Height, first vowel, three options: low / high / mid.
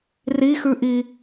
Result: high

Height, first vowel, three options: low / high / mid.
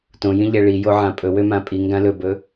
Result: mid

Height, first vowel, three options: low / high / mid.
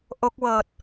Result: mid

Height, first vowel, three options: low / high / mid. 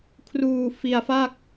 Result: high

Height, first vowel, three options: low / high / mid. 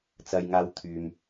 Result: low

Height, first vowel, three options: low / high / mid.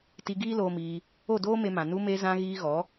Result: high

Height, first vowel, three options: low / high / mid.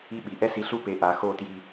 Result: high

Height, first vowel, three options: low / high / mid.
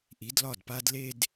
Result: high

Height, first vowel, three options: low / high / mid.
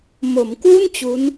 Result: mid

